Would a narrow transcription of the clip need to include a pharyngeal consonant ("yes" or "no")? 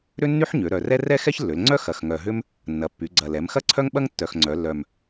yes